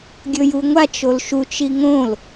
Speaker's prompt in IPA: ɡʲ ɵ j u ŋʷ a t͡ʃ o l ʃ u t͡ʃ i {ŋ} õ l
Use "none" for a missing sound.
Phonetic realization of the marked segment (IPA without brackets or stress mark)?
ŋ